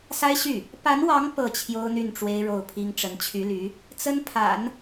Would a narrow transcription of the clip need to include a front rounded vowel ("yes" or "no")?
yes